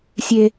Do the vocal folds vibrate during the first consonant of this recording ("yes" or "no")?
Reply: no